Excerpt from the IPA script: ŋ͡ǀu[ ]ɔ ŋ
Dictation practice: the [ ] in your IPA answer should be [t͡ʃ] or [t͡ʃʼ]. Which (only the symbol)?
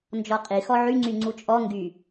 t͡ʃʼ